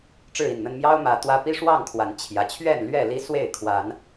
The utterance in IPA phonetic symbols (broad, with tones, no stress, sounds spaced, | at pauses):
ʈ͡ʂ ɻ̩˥˨ i˥˨ n n̪ ə˦ n m j ɑ˦ ʊ̯ m ä˨˦ t̪ w ä˦ p i˦ ʂ w ɑ˥˨ ŋ kʰ w a˨˦ n t͡ɕʰ j ä˨˩ t͡ɕʰ ɥ ɛ˥˨ n l ɥ ɛ˥˨ l i˦ s w e˥˨ ɪ̯ kʰ w a˨˦ n